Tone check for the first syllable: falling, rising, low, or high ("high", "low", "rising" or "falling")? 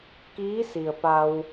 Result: rising